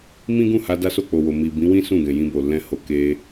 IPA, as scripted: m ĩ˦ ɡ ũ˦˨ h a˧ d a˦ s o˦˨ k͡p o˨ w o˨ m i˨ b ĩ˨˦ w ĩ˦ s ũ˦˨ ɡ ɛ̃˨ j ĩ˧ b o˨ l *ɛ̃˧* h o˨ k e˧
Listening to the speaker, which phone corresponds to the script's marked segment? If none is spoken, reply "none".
ɛ̃˧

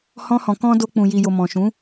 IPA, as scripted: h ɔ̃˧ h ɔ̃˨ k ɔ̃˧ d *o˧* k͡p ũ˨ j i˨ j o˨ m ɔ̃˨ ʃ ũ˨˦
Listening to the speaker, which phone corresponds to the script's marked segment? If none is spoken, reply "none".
o˧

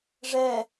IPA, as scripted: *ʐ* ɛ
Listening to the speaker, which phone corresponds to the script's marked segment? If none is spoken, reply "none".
ʐ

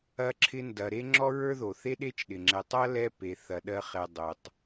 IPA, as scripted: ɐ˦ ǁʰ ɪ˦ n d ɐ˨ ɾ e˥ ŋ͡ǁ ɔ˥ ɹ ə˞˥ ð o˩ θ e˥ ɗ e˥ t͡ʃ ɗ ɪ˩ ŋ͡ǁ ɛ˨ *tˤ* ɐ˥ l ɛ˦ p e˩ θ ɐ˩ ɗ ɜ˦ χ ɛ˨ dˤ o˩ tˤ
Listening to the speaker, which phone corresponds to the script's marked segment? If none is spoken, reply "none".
tˤ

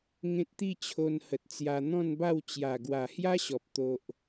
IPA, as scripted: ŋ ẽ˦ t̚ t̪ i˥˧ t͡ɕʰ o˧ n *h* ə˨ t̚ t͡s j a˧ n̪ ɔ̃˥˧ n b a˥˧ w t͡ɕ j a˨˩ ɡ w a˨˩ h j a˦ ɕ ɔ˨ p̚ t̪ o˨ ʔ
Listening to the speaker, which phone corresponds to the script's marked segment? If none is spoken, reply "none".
h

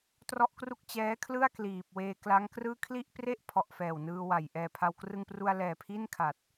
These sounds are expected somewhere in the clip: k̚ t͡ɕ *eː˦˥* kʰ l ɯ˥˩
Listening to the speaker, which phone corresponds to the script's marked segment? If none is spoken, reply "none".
ɛː˦˥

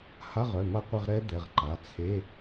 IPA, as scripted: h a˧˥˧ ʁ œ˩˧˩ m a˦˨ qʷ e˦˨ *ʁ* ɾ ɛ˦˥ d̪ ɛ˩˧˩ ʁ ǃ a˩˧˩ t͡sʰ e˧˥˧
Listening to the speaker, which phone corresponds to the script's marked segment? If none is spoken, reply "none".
ʁ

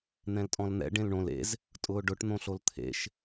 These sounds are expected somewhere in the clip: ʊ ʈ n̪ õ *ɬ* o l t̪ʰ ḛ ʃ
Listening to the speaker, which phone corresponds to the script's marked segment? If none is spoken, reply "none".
ɬ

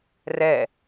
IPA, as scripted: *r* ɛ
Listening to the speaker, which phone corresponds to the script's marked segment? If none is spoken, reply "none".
r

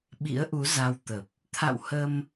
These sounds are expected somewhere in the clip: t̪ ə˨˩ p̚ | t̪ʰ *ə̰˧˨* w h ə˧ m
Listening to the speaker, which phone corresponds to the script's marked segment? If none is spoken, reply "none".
a̰˧˨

